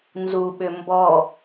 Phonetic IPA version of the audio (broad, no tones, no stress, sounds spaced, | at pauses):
n z u ɓ ʏ m b ɔ